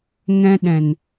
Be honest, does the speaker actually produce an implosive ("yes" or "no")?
yes